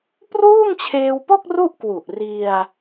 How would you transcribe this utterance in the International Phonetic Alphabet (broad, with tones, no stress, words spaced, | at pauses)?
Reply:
pruː˥˩ŋt͡ɕʰeː˧wpo˥˩k̚ ru˥˩ʔkwu˨˩ʔri˧a̯